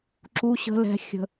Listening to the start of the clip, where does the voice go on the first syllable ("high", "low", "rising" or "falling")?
high